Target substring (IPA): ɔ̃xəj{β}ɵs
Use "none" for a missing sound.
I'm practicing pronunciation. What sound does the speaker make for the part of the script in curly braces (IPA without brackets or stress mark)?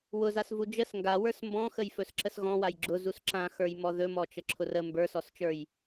f